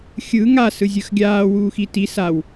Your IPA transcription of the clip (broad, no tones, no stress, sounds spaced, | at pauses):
xʲ ɯ ŋ a s ɯ zʲ ɯ x ɡʲ aː w uː x i t i s a w